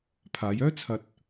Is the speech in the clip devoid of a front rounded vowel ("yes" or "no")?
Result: no